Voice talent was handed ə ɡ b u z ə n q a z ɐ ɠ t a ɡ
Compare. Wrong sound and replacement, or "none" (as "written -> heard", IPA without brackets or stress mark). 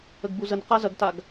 ɠ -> ɡ